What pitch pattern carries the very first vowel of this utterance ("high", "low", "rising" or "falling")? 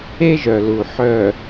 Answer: high